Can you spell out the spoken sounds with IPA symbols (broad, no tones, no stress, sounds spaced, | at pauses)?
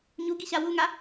ɲ u ɡ i ɕ a w u ŋ a